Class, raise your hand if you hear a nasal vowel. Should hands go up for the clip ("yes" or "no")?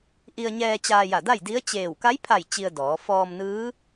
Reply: no